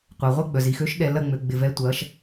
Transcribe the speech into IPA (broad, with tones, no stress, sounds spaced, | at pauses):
qʷ ɛ˨ ʁʷ ɐ˥ ɡ͡b œ˨ z i˨ x ø˨˦ ʃ ɗ ɛ˨ l ɐ˥˧ ŋ͡m ø˨ ɡ͡b ɪ˨ v ɛ˨˦ tʷ ɐ˨˦ ʃ